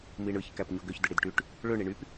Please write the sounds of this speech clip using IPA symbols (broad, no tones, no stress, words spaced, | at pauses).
miɳɯç kæpɲoɡøç dɯɽidʈyʈ | ɭø ɳiɳyp